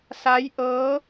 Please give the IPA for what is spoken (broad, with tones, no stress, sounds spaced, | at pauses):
s a˧˥ j ʔ ɤː˧˥